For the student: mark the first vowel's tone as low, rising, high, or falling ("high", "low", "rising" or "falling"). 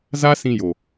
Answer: high